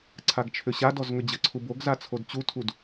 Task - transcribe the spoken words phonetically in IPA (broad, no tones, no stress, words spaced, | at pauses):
ǀʰaɡt͡ʃʰʏɕadɔz ŋʏd͡ʑəǀʰu boɡza t͡sʰodt͡ɕutʰud